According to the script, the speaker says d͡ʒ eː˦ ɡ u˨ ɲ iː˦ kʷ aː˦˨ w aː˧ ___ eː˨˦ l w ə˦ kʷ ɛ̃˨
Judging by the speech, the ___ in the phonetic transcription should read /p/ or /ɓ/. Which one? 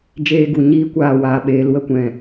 ɓ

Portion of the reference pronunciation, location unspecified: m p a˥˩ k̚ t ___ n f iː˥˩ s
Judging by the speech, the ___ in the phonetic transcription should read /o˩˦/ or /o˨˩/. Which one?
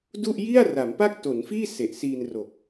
o˩˦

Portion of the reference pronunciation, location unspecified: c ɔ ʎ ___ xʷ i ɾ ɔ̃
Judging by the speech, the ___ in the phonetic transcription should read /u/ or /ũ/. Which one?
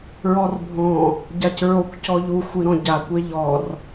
u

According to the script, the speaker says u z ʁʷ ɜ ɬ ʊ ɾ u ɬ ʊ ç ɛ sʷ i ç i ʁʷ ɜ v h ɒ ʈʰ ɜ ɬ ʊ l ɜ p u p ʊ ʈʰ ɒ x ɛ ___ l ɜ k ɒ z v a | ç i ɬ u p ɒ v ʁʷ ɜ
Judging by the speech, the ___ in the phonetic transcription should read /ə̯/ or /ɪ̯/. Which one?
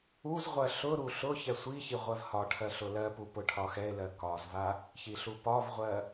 ɪ̯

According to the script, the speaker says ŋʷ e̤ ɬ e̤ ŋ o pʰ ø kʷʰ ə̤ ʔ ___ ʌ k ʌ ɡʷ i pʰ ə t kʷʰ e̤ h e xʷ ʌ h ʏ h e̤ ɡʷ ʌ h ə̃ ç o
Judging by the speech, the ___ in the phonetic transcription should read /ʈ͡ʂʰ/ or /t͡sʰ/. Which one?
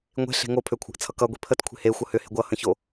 t͡sʰ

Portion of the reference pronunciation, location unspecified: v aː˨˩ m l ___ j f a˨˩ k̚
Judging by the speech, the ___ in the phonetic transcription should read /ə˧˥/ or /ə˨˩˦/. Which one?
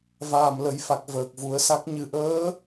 ə˨˩˦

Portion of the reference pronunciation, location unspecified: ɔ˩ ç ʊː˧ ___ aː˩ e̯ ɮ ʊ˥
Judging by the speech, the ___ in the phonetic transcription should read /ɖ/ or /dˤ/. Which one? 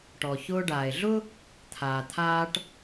ɖ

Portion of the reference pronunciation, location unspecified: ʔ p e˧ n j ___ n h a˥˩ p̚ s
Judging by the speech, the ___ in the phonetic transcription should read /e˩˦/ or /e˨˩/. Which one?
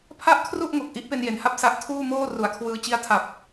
e˨˩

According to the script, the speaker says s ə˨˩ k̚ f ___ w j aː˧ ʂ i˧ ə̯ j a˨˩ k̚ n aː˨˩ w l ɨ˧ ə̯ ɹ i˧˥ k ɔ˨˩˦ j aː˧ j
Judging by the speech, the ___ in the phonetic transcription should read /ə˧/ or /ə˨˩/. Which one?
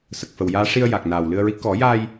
ə˨˩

